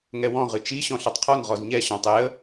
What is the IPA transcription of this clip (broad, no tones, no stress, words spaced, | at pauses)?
ŋɛwɔ̃ ʁɨt͡ʃi ɕɔ̃ɬɔtˤqʰɔn ʁɔzɲɛ ɕɔ̃tˤɛə̯